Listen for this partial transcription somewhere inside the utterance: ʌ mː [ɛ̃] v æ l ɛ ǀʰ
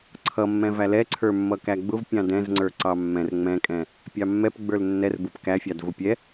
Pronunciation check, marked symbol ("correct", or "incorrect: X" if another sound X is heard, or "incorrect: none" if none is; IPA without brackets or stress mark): correct